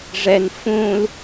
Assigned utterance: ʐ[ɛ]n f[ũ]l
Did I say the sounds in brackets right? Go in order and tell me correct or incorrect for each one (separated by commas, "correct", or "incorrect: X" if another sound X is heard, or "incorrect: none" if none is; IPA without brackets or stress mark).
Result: correct, correct